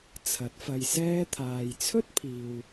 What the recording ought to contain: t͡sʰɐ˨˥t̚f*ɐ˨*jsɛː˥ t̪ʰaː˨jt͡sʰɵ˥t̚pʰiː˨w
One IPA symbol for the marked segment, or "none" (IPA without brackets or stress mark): ɐ˧